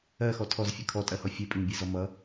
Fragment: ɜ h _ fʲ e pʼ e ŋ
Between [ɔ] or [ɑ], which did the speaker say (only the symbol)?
ɔ